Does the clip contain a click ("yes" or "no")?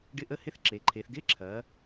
yes